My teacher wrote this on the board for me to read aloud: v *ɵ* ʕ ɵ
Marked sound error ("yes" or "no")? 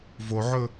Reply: yes